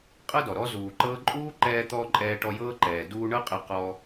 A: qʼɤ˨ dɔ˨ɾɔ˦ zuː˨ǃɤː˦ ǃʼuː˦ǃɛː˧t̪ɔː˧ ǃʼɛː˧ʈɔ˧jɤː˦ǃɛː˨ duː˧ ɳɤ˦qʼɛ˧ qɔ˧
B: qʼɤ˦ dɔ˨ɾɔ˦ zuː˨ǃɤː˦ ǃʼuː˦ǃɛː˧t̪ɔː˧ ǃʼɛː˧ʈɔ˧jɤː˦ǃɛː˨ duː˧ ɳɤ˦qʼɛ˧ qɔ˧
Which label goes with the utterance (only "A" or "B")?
B